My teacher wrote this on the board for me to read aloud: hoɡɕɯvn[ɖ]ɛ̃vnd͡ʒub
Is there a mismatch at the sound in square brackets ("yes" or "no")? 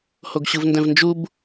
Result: yes